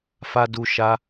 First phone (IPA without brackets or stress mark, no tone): f